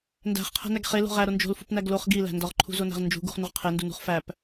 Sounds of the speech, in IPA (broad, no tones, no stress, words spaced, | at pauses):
ndæ̤χqʰæ̤næɡ χelo̤ ʁæɾo nd͡ʒo̤lfṳpnæɡ loχ ɡilæ̤ ndɒʁǃʰṳzonæ̤ʁ nd͡ʒṳɡṳχnuʁ qʰendunṳχ fæp